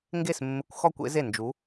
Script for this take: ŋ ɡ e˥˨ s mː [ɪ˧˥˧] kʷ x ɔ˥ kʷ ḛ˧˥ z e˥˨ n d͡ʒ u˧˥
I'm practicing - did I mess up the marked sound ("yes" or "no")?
no